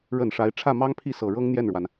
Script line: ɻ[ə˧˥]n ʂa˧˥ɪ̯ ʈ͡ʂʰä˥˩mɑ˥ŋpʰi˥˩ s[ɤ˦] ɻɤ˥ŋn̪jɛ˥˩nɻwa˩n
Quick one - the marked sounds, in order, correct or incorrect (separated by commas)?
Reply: incorrect, incorrect